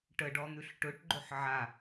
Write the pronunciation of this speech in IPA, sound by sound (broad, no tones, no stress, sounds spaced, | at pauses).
ʈ ə ɖ ɔ n̪ ʉ ɬ ʈ ɵ ʈ ɡ͡ǃ o ħ ʕ a